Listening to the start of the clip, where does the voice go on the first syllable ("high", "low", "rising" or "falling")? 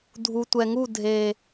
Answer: low